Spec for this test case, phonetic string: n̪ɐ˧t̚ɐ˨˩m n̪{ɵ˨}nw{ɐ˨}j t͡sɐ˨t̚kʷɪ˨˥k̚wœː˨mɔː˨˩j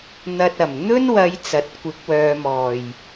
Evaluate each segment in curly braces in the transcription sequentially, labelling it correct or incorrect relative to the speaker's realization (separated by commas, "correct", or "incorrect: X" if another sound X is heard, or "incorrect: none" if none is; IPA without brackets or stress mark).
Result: incorrect: ɵ˥, incorrect: ɐ˨˧